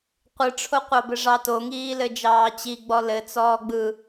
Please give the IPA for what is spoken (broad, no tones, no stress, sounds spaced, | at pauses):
qʷ ɯ ʈ͡ʂʰ o qʷ ɑ b ɘ ʐ ɑ t o ŋ iː l ɘ d͡ʒ ɑː t͡ɕ i ɡ͡b ɔ l ɘ t͡s ɔː ɡ͡b ɯ